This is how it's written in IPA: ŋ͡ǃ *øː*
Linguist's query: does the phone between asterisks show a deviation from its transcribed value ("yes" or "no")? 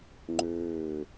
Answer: no